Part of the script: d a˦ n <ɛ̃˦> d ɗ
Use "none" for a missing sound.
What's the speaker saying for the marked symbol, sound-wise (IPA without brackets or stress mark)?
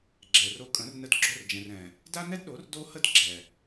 ɛ˦